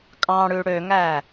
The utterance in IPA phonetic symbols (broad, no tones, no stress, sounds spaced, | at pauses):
kʼ ɑ̃ ɽ ʉ ɽ ø ŋ æ